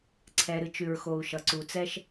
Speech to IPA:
ǀʰ ɛ˨ ɾ ɨ˨ t͡ʃ ʉ˨ ɹ x o˨ u̯ ʃ ʌ˨ ǀ u˨ t͡s ɛ˦ ʃ

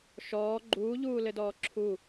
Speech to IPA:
ʃ ɔː ɡ͡ǃ uː ʎ uː l ɘ d ɔː ǁʰ u

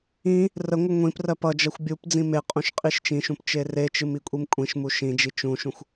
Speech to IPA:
ĩ | r ə ŋʷ ɨ ŋʷ ĩ p r ɜ p ʌ d͡ʒ ɜ xʷ bʲ u p d͡z ĩ m e qʼ ũ ʃ qʼ i ʃ t͡ʃ ĩ ʃ ũ p t͡ʃ e r e t͡ʃ ɨ m i kʷʼ i m kʷʼ ĩ ʃ m u ʃ ĩ d͡ʒ i t͡ʃ ũ ʃ ũ xʷ

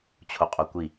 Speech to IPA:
t͡ɕʰ o qʼ o kʷ i

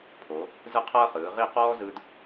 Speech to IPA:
pʰ o˩˧ | z ɯ˥ qʰ ɤː˥ χ ɯː˩˧ ʁ i˥˧ q ɔː˥ z ɯ˧ d

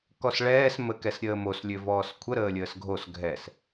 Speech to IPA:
k ɔ s ɭ ɛː s m ə k ɛ s ɾʲ əː m o s lʲ ø v ɔː s kʷʰ ə ɾ əː lʲ əː s ɡʱ o s ɡʱ ɛ s

